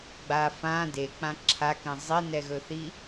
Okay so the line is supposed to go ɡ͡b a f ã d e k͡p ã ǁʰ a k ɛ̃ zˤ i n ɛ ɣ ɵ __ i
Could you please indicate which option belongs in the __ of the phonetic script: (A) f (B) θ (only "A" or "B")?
B